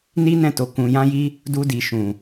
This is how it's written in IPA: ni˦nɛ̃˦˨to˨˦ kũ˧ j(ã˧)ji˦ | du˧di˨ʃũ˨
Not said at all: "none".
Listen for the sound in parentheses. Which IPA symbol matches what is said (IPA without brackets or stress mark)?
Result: ã˦